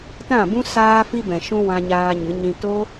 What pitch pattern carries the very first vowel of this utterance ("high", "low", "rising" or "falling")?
falling